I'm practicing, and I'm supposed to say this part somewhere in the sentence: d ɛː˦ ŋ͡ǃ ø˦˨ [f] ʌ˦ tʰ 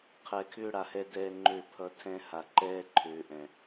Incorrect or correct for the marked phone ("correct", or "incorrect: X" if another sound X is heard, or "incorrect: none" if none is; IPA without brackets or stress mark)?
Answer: incorrect: pʰ